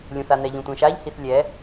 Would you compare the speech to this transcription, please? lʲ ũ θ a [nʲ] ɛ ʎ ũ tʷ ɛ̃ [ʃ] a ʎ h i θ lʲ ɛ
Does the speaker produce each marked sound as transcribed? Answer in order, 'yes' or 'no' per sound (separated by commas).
no, yes